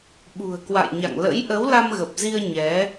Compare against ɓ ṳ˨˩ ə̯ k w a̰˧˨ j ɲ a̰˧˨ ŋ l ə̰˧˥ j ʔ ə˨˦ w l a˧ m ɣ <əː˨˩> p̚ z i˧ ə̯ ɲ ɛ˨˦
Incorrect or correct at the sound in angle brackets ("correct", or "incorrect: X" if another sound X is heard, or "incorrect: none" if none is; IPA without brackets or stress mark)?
incorrect: ə˨˩